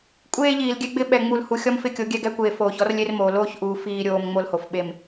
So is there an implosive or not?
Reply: yes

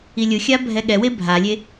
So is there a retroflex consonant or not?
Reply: no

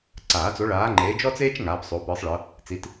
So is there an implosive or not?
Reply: no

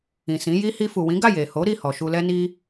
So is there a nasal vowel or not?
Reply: yes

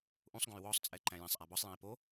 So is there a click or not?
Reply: yes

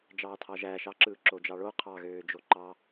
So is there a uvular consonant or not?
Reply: yes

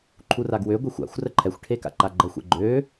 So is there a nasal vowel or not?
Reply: no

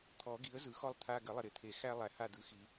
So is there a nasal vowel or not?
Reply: no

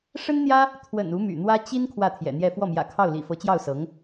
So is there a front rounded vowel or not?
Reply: yes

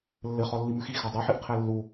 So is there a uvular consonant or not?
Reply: yes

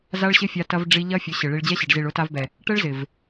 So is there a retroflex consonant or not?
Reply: yes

